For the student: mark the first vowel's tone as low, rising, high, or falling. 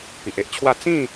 low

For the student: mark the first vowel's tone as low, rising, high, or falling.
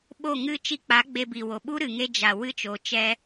falling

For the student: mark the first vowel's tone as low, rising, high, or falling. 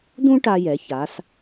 high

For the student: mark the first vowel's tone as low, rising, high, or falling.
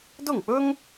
falling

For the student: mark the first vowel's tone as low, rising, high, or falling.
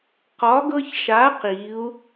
rising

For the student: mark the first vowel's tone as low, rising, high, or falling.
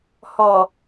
low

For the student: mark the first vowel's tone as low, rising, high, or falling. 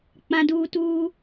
high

